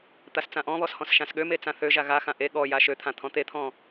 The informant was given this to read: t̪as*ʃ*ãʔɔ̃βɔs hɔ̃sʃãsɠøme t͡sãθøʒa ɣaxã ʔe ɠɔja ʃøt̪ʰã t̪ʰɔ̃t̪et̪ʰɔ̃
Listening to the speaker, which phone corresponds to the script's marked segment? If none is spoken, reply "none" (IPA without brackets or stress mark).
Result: t͡s